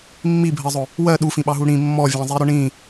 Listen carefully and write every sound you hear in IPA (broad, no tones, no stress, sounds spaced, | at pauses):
mː i bʱ ɜ zˤ ʊ | w ɜ ɗ u f ĩ ɓ ɑ ɦ u ɽ ĩ mː ɔ vʲ ɑ̃ zˤ i ɾ ʊ ɳ ĩ